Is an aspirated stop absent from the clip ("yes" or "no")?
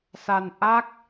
yes